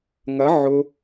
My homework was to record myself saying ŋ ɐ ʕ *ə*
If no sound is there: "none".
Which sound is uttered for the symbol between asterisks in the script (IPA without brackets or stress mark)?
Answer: ʊ